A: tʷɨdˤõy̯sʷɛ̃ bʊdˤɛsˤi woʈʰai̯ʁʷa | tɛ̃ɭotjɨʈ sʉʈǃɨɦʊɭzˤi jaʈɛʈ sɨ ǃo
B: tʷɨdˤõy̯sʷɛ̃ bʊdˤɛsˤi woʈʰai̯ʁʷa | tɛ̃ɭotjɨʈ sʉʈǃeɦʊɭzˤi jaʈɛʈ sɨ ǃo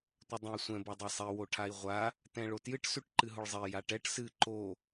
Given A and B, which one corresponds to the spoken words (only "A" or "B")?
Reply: A